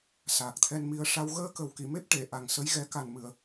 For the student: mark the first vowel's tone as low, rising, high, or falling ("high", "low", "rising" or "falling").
low